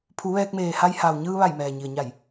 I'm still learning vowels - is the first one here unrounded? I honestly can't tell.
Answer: no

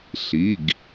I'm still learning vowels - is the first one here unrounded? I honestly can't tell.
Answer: yes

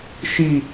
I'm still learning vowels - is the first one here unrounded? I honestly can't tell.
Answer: yes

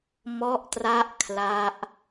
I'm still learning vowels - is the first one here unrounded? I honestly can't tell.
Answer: no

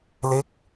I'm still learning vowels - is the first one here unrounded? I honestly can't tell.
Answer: yes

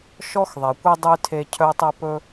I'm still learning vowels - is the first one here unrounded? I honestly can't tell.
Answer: no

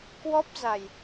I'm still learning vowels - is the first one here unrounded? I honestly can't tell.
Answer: no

